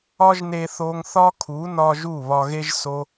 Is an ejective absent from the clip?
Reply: yes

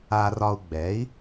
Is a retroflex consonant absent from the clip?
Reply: yes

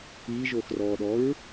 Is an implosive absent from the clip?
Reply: no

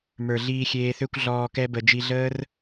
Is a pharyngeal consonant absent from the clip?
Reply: yes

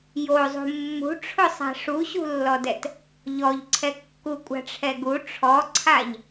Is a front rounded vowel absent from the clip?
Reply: yes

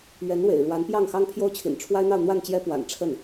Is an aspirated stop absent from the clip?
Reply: no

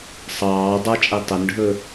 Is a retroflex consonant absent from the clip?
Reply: no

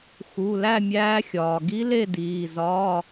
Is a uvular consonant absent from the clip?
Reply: yes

